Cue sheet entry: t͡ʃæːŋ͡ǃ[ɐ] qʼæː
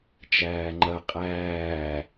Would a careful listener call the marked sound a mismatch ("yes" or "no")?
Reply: no